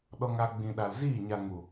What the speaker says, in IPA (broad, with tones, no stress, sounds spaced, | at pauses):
ɗ ɔ˧ ŋ a˧ ɡ͡b ĩ˨ ɗ a˨ l z iː˦˨ ɲ a˨ ŋ u˨